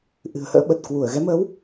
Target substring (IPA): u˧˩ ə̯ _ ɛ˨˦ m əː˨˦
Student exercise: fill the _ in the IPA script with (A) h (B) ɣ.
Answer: B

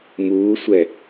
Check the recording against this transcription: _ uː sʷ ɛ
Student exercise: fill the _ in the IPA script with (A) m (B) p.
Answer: A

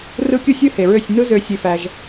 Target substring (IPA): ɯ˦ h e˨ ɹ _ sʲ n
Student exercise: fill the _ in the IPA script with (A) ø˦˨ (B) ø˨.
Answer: A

